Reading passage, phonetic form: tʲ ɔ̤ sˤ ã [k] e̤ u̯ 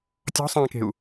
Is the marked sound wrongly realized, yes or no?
no